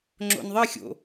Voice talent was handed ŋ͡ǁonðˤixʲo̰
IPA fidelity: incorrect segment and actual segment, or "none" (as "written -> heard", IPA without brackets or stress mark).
o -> o̰